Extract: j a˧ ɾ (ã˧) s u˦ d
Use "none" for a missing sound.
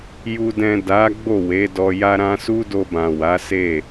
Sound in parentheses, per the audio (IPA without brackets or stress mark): ã˧